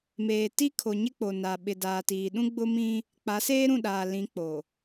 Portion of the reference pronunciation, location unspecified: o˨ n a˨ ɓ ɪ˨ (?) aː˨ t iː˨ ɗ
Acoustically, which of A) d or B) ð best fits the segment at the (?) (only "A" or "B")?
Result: A